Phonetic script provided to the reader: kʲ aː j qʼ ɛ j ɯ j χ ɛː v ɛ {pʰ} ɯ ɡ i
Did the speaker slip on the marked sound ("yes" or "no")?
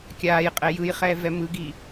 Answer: yes